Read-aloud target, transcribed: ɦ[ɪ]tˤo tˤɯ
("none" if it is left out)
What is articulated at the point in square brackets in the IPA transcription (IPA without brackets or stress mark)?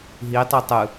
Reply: i